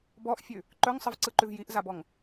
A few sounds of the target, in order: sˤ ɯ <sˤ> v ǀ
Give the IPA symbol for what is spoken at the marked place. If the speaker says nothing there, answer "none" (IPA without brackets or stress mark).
none